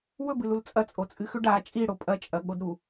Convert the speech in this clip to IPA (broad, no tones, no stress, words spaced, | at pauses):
wɵbɨlul t͡sʼɐt͡sʼot͡sʼɨxʉ ɖa t͡ʃʼiɽo pʼɐt͡ʃʼɐɠodɾu